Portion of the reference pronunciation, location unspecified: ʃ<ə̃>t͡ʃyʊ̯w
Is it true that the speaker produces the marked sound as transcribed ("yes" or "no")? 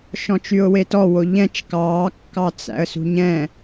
no